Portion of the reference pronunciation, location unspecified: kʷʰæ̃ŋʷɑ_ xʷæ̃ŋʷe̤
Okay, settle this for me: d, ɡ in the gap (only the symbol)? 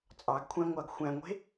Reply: ɡ